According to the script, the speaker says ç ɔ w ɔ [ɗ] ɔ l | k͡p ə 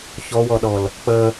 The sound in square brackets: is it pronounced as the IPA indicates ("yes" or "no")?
yes